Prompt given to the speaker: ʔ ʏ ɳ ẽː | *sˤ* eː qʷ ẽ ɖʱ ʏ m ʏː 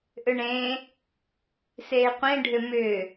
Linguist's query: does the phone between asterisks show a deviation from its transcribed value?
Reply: yes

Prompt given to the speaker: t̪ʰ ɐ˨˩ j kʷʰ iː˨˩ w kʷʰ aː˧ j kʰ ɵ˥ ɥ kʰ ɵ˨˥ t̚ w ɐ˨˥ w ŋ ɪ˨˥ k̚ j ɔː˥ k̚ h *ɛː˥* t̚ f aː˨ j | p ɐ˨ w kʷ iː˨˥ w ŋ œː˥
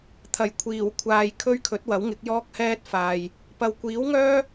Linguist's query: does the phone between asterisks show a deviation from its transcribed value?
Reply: no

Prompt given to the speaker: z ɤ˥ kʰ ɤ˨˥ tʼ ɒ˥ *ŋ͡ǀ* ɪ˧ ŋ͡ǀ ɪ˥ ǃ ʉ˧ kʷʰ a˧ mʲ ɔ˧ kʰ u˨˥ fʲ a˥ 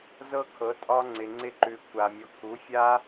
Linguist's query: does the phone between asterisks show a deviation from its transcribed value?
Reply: no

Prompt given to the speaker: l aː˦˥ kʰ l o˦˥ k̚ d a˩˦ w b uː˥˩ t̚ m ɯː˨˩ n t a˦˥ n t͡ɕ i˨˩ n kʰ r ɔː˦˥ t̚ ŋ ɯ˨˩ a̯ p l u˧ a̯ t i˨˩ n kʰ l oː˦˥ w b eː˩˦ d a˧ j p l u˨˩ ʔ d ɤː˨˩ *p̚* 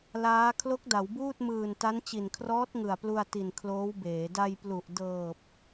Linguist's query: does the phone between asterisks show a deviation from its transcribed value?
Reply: no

